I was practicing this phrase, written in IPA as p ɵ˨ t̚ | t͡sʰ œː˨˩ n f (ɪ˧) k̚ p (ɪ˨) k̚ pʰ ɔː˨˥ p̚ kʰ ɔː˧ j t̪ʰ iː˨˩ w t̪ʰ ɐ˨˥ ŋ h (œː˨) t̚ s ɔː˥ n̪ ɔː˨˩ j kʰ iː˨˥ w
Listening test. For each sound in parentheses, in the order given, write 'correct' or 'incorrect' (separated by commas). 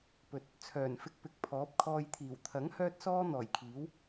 correct, correct, incorrect